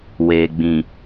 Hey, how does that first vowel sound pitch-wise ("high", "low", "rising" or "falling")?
low